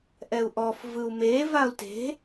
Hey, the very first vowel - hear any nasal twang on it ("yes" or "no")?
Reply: no